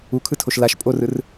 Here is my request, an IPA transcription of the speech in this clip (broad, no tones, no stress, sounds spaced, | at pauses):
u kʰ ɯ tʰ o ʃ l a ʃ pʼ o r ɯ r